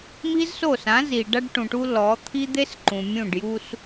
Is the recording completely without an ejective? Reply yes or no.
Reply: yes